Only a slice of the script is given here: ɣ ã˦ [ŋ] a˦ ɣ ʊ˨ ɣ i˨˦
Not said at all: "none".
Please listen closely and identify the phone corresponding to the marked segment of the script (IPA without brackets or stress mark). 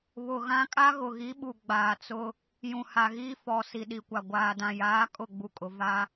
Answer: kʼ